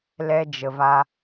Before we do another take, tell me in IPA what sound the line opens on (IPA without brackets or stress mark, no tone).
l